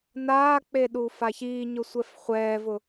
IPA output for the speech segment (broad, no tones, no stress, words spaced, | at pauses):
naːk͡pe ɗuːfaçiːɲʊ sʷɛfχʷɛːvʊ